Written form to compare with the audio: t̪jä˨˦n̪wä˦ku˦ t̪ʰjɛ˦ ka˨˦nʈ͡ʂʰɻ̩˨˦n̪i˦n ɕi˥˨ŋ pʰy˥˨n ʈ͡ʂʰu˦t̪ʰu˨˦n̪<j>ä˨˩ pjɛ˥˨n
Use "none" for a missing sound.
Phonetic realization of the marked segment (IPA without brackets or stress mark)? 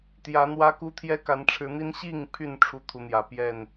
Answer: j